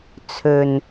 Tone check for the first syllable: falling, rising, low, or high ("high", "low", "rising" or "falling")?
low